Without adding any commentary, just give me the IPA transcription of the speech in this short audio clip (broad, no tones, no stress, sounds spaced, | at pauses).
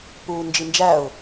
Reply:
p uː n d͡ʒ i n d͡ʒ æ ʊ̯